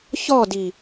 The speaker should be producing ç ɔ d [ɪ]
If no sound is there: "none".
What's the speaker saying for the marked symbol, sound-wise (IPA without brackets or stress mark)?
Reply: i